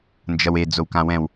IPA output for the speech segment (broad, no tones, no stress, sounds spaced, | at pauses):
n d͡ʒ ʌ w e d͡z o w k ã w ɛ̃ w